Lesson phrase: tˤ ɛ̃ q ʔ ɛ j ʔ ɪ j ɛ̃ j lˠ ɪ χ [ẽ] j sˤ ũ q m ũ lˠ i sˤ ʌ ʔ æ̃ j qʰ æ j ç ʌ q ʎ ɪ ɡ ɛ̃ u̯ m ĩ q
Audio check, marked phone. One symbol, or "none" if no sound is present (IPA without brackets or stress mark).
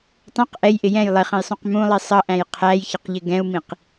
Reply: ɛ̃